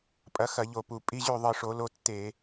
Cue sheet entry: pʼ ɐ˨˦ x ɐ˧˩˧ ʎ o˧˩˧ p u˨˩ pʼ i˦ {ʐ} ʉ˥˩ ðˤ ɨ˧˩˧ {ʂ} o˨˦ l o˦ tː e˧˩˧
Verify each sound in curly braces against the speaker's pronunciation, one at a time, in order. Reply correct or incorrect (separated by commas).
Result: incorrect, correct